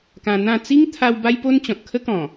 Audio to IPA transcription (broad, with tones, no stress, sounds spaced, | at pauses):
k ã˧ n̪ ã˥˧ t͡s i˦ ŋ t̪ʰ a˧ w b a˦ j p o˦ n t͡ɕ ɔ̃˨ t̚ kʰ ə˦ k ɔ̃˨˩